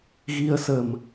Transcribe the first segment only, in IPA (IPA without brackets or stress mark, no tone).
ɣ